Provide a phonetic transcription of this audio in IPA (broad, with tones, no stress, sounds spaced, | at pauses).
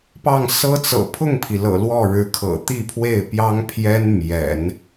p ɑ˥˩ ŋ s ɤ˥ t͡s ɤ̰˨˩ pʰ ʊ˥˩ ŋ pʰ i˩ l ɤ̰˨˩ l w ɔ˥˩ ɻ ɻ̩˧˥ kʰ ɤ̰˨˩ t̪ i˥˧ pʰ w e˥˩ ɪ̯ p j ɑ˥ ŋ pʰ j ɛ˥ n m j ɛ̰˨˩˦ n